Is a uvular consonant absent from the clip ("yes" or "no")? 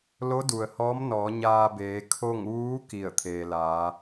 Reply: yes